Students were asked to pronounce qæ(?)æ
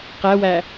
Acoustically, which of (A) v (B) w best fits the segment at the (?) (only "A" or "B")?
B